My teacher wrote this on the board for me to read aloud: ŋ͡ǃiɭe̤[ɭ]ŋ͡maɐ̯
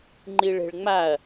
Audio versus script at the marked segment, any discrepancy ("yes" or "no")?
no